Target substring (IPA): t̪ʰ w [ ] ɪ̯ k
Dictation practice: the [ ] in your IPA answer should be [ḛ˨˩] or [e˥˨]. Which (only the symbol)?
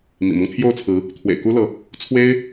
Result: ḛ˨˩